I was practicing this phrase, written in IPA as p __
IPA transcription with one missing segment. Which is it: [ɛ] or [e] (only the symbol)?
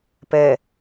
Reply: ɛ